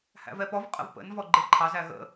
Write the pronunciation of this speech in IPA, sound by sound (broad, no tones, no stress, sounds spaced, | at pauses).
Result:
h æ̰ v ɛ p ɔ v qʼ ə̰ v p ə̰ n v ɔ ɡ͡ǃ ɪ v ǃʰ ɑ z æ ɣ ə̰